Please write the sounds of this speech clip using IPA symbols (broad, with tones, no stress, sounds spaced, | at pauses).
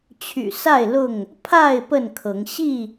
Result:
t͡ɕʰ y̰˨˩ s a˥˨ ɪ̯ l ʊ˥˨ ŋ | pʰ a˥˨ ɪ̯ p ə˥˨ n kʰ ɤ˨˦ ŋ ɕ i˥˨